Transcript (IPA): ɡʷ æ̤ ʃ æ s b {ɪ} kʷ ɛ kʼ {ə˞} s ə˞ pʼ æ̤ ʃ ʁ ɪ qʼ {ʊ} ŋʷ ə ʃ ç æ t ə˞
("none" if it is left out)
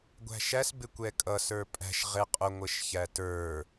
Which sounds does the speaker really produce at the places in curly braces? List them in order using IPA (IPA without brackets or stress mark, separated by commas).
ɪ, ʌ, ʊ